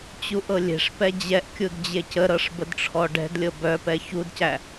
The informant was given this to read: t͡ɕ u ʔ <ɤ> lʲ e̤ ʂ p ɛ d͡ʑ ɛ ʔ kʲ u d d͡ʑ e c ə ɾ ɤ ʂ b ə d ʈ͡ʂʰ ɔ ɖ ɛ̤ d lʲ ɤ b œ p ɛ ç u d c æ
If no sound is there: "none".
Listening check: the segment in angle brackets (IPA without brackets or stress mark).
ɤ